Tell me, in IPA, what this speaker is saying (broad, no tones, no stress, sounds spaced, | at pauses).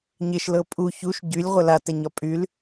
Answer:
ɲ ɪ ʃ l ɤ pʼ u ç u ʃ ɟ y lʲ ʁʷ ə l a t ɛ ɲ ɒ pʼ y l